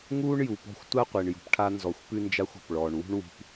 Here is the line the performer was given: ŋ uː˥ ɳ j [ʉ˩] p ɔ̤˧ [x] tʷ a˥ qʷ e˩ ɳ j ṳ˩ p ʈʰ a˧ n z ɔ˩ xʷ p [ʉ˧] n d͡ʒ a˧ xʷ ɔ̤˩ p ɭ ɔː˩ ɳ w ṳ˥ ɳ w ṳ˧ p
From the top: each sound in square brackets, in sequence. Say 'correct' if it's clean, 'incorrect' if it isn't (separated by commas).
incorrect, incorrect, correct